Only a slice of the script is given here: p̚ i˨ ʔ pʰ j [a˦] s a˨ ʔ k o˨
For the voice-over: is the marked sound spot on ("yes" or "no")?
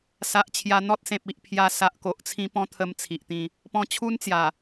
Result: no